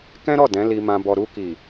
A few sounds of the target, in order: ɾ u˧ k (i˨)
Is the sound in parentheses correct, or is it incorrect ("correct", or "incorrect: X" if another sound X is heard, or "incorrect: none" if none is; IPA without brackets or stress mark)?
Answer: correct